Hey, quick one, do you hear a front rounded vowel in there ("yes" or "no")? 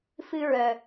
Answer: yes